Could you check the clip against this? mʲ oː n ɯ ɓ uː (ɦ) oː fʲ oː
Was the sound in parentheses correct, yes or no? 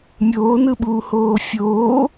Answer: no